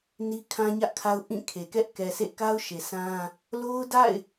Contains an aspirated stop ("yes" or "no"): yes